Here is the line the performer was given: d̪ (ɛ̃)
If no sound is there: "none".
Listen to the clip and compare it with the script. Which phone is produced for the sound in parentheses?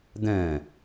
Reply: ɛ̃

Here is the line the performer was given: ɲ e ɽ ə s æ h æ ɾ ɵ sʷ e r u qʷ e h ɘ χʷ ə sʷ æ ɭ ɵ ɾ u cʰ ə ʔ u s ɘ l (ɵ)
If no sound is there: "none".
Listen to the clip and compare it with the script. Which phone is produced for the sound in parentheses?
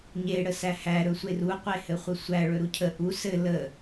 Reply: ə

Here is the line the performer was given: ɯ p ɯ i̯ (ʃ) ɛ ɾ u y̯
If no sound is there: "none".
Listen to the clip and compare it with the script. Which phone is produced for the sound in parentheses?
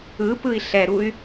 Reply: ɬ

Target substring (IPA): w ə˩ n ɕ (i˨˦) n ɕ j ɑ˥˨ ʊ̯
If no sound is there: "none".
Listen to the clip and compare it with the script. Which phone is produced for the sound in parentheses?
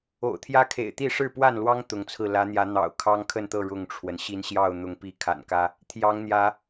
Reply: i˨˦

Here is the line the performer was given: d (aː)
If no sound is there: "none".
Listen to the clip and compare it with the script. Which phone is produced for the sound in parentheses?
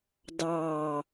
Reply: ɑː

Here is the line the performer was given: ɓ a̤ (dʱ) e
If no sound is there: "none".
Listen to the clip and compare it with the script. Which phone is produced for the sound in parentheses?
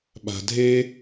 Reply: dʱ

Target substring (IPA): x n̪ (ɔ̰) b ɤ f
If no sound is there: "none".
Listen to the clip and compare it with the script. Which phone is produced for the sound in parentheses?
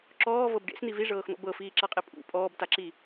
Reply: ɔ̰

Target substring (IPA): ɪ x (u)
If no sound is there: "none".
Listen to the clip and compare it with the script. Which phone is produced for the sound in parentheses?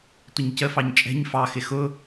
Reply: ʊ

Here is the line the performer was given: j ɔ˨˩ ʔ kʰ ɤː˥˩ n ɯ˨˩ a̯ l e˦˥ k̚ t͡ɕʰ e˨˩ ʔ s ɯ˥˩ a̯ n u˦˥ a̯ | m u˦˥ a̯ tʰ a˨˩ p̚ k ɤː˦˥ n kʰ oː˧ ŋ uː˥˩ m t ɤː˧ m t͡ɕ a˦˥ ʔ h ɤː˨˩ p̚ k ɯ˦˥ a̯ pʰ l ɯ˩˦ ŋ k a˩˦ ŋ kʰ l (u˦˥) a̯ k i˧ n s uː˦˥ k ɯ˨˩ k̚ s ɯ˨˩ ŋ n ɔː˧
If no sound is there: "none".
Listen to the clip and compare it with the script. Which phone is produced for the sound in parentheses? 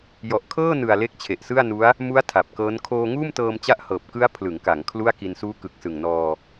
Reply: u˥˩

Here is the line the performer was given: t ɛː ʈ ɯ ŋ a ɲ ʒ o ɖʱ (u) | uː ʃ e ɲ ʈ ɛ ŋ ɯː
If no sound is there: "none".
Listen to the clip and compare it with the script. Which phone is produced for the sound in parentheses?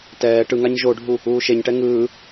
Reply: u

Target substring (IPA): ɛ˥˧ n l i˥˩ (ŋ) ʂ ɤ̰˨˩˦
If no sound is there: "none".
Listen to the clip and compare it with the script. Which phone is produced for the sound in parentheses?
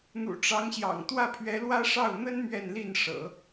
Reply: n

